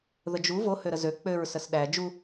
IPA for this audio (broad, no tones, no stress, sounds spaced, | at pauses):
ð ə d͡ʒ u v o h ø ɾ ə z ø k͡p ø ɹ s ə s ɗ æ d͡ʒ u